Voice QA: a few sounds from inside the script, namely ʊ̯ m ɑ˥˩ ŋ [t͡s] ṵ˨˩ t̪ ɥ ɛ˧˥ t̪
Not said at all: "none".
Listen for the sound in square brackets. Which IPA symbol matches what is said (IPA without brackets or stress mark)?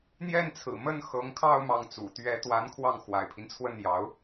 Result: t͡s